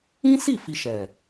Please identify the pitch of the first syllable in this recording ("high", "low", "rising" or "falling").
high